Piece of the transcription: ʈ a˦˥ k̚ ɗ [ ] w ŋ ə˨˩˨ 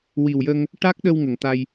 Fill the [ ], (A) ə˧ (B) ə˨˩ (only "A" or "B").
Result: A